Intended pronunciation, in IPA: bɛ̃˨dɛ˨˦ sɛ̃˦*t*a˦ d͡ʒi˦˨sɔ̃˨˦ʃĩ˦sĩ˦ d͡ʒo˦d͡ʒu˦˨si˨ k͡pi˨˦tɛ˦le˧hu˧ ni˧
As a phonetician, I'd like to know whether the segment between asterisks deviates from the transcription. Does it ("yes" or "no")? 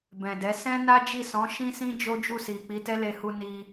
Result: yes